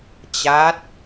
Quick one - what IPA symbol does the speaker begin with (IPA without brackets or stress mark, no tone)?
t͡ɕ